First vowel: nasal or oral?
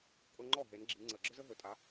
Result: oral